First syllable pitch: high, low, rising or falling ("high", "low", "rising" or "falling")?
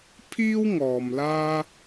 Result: high